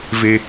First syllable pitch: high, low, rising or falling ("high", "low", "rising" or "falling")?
high